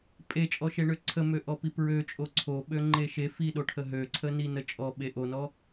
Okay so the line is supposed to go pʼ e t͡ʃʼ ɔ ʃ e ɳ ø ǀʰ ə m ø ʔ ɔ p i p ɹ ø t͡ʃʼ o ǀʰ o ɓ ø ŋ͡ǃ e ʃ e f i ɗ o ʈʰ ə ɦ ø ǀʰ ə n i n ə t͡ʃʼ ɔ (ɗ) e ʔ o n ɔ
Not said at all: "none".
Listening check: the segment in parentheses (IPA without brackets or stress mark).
ɓ